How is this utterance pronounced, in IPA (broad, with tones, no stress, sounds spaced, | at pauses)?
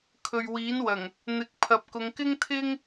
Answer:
kʰ ɵ˨ ɥ w iː˨˥ n w ɐ˨˩ ŋ | n̪ ɪ˨˥ k̚ pʰ ɐ˨ p̚ k ʊ˨˧ ŋ k ɪ˥ ŋ t̪ʰ ɪ˥ ŋ